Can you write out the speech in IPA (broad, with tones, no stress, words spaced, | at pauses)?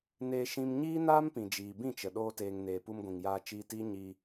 neː˧ʃĩ˧m ɲiː˦naː˦mpĩ˨d͡ʒiː˨ bĩ˦˨t͡ʃə˨ ɗoː˦teː˧ŋneː˧ pu˧mɡʷĩ˨ŋjaː˧ t͡ʃiː˧tiː˦ ɲiː˧